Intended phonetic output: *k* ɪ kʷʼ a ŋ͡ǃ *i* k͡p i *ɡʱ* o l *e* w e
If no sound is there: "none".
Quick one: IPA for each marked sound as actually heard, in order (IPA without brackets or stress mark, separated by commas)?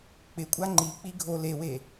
k͡p, i, ɡʱ, e